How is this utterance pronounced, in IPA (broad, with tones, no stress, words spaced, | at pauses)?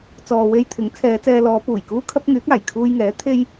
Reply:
t͡sɔː˨we˧j t̪ʰɪ˨˥ŋ t͡sʰɛː˨˧t͡sɛː˧lɔː˨˧ puː˨˩jkuː˥kʰɐ˥p̚ ŋyː˨˥k̚aː˨˩j kʰuː˧jŋɛː˨˥ t̪ʰe˥j